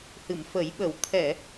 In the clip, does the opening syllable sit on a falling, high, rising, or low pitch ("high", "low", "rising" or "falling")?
low